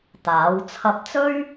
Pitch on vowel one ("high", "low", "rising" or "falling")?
rising